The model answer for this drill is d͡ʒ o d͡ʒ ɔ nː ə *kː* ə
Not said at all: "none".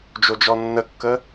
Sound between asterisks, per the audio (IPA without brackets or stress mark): kː